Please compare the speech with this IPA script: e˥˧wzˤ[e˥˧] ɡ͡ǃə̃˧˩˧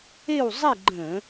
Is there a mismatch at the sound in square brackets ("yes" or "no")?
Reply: no